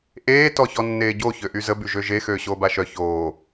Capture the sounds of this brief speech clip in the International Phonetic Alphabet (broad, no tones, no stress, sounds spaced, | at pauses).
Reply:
ʔ eː t ɔ ç ɔ nː eː ɟ o ç ø ʔ y z ə b y ʒ ø ʒ e x øː ɕ oː b a ʃ œ ç oː